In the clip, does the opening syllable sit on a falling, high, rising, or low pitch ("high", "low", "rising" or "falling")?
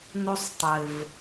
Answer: high